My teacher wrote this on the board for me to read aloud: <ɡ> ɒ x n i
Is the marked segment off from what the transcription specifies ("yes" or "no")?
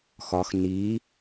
yes